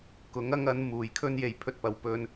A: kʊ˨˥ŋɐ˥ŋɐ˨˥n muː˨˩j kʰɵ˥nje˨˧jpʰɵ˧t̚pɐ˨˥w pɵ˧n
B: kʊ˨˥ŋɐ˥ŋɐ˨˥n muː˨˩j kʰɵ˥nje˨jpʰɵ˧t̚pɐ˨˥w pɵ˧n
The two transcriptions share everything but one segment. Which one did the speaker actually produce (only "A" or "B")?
A